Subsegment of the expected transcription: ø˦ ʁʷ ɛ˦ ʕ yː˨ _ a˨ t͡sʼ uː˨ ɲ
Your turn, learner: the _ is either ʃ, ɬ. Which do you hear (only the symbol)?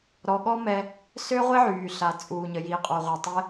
ɬ